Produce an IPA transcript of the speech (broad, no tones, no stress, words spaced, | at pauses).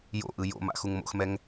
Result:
jo̰ʔɯ jo̰ma̰ xuŋmo̰xmɛŋ